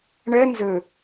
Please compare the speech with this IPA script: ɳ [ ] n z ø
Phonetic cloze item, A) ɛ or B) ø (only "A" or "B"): A